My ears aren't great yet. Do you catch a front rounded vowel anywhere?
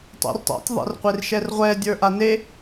no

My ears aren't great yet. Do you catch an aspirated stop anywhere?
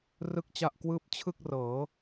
yes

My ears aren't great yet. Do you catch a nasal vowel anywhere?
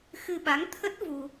no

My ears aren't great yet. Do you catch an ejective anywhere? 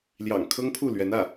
no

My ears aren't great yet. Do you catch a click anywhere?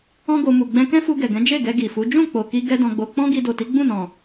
no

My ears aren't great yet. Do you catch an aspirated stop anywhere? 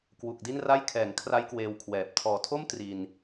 yes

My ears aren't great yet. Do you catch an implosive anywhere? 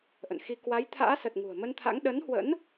yes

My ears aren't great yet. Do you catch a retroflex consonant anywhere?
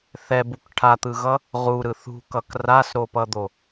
yes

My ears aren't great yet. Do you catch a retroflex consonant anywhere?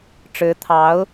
yes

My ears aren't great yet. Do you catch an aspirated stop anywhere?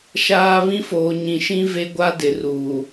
no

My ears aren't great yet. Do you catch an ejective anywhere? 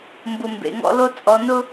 yes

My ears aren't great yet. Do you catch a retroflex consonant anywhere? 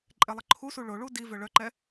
yes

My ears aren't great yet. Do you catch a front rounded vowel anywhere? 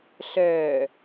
yes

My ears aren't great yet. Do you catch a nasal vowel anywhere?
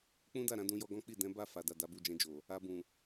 yes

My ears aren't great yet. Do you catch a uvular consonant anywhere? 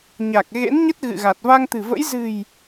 no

